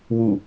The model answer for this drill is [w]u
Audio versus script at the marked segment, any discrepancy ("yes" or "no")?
no